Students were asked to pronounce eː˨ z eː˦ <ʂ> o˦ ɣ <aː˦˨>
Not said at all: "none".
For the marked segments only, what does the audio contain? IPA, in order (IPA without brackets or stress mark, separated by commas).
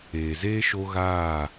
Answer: ʃ, aː˦˨